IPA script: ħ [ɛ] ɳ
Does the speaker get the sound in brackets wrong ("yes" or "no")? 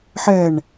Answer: no